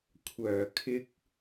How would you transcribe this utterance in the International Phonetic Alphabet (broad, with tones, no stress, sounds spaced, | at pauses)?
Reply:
kʷʰ œː˨˩ kʰ ɪ˧ k̚